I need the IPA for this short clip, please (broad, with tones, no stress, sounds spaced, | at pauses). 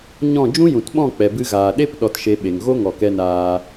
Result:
ɲ ɔ̃˦˨ d͡ʒ ũ˦ j ũ˨ t ɓ ɔ̃˦˨ k͡p ɛ˨ b ɨ˧ ɣ aː˨ ɗ e˦ p ɗ ɔ˧ t ʃ e˧ ɓ e˨ ŋ ɣ o˦ ŋ ɔ˨ k ɛ˧ n aː˧